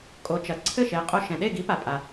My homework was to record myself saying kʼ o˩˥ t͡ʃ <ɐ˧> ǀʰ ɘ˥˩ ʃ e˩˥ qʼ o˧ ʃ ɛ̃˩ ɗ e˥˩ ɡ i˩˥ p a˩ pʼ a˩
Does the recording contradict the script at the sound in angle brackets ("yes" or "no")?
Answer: yes